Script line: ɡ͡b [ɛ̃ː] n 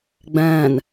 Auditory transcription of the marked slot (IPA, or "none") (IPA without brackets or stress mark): ɛ̃ː